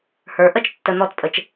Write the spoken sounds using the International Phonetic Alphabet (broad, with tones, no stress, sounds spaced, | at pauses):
h ə˞˨˦ ʔ ə˦˨ t͡ʃ tː ə˧ n̪ ɔ˦˨ t pʼ ə˧ t͡ʃ